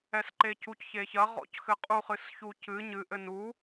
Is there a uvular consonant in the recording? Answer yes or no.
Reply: yes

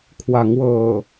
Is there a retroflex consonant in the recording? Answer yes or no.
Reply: no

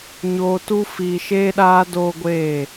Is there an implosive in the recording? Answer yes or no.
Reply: yes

